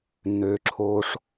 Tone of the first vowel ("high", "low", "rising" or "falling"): low